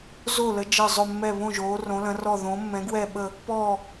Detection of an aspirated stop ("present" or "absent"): absent